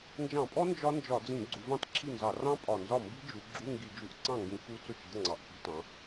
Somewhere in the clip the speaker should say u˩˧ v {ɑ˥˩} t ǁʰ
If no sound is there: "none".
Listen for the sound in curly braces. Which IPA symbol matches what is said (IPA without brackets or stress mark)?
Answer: ɑ̃˥˩